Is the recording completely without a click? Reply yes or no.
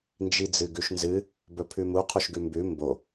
yes